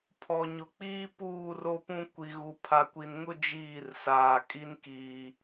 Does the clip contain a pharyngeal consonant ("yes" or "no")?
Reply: no